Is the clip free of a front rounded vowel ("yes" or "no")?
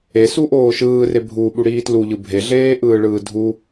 yes